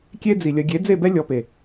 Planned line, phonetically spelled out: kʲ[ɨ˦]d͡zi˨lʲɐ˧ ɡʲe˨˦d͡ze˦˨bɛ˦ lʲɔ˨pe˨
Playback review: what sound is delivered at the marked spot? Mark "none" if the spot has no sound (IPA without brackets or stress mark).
e˦